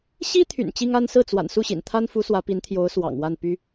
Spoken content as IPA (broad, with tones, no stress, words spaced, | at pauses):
ɕi˥t̪ʰy̰˨˩n t͡ɕi˥ŋa˥n sɹ̩˥˩t͡swa̰˨˩n su˥˩ɕḭ˨˩nt̪ʰa˥nfu˧˥ swä˧˥pi˧˥nt̪ʰjo˧˥ʊ̯ swɑ̰˨˩ŋ wa˥˩n py˥